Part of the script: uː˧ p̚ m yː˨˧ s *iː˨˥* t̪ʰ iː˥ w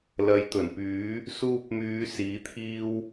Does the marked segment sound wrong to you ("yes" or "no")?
no